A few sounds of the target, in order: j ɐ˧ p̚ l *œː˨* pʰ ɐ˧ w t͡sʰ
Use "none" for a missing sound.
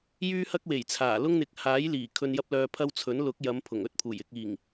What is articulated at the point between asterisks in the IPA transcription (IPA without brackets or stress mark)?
œː˨